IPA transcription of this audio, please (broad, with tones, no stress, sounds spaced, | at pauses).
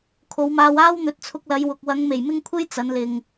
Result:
kʰ o˨˧ w m aː˧ w aː˥ w n̪ ɵ˨˥ t̚ t͡sʰ ʊ˧ k̚ l ɐ˨˧ j w ʊ˨ k̚ w ɐ˨˧ ŋ m e˨˩ j m ɪ˥ ŋ kʷʰ e˥ j t͡s ɐ˨˧ n l ɪ˨ ŋ